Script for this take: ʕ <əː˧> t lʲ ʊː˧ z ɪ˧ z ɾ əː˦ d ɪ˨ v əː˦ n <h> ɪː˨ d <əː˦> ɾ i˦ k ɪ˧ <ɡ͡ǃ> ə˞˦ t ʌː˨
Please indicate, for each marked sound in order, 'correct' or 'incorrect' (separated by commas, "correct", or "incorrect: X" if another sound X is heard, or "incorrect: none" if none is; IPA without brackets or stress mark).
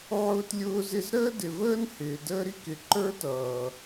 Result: incorrect: ʊː˧, correct, correct, incorrect: ǃ